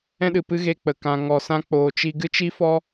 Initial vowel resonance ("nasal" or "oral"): nasal